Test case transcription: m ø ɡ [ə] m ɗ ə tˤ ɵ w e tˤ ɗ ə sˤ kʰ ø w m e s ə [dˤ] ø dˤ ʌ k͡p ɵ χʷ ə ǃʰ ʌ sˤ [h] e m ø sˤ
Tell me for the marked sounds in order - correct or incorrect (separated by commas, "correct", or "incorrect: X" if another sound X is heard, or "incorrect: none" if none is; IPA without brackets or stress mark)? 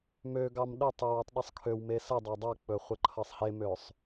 incorrect: ɑ, correct, correct